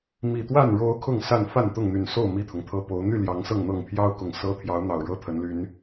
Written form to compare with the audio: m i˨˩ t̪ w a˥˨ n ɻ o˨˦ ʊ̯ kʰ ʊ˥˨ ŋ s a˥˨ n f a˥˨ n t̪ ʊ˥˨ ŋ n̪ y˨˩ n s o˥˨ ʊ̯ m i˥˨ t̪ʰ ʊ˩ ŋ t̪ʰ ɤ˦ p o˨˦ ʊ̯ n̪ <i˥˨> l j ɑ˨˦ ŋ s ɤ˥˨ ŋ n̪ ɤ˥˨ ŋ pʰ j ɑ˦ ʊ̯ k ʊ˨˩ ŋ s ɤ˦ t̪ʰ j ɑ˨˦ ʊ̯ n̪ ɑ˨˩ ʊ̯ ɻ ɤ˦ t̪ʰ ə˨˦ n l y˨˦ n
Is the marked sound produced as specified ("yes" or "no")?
no